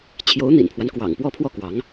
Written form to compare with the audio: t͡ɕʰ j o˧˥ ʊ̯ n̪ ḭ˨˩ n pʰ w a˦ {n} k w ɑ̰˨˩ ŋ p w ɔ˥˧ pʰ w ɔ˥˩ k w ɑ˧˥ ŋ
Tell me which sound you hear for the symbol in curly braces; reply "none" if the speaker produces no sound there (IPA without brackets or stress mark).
n